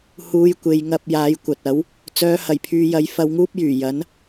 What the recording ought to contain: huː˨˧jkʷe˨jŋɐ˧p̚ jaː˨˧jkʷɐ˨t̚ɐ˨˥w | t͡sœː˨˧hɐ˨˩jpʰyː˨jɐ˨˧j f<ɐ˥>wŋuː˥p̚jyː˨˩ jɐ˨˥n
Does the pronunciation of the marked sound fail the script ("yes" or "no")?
yes